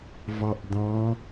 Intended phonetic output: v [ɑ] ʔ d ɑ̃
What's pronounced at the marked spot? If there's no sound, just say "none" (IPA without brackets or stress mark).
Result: ɑ